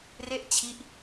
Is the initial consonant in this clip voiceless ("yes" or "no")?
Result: no